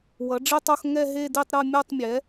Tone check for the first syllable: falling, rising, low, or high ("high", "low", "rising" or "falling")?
rising